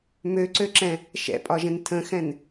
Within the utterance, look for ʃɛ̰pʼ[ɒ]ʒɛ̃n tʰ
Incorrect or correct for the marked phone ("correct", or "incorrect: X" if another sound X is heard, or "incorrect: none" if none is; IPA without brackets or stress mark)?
correct